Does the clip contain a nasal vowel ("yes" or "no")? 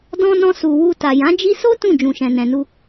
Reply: yes